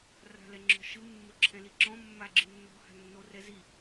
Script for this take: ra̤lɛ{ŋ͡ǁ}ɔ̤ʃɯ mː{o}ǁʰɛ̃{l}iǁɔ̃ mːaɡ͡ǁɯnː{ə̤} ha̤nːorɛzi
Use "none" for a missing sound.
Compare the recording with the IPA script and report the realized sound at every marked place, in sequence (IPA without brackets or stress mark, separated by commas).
ŋ͡ǁ, o, l, ɔ̤